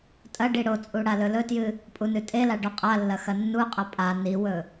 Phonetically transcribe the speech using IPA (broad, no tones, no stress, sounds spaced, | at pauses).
tʼ ɐ ɖ i ɽ o t͡sʼ u ɽ a l ɵ l ɵ t j ɨ | pʼ u n ʉ tʼ e l a ɖ o qʼ a lː ɐ x ɐ nː u qʼ ɐ pʼ a n i w ɵ